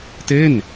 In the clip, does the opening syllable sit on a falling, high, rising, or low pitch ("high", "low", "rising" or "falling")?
falling